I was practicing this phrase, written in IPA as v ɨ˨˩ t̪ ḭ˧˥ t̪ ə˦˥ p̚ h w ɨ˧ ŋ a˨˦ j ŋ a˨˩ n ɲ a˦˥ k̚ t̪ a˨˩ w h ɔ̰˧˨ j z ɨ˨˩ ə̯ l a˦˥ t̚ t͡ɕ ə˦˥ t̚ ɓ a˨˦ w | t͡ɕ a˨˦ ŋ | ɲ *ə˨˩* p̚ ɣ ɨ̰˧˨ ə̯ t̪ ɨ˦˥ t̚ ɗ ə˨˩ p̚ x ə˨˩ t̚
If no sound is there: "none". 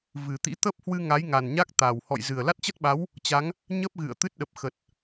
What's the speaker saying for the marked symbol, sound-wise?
ə˦˥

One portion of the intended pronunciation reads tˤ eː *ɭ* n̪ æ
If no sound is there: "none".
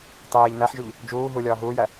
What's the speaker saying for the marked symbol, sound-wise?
ʎ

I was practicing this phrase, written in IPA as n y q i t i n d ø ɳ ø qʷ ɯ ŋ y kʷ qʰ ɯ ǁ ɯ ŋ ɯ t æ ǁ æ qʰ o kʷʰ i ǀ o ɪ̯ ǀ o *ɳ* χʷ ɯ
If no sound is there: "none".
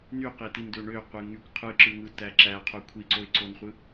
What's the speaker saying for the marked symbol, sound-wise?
n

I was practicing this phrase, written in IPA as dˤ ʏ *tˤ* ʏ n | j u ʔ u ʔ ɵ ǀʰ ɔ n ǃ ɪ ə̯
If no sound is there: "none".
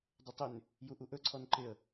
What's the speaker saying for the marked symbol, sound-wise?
tˤ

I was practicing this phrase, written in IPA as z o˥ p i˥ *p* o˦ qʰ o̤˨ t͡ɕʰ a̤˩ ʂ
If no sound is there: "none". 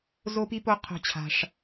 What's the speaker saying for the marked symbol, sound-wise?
p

